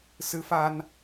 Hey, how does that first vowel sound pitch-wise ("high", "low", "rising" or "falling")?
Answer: rising